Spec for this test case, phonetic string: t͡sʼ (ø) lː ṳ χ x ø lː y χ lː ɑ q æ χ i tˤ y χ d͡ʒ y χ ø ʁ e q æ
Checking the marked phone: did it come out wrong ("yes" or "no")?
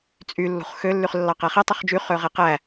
yes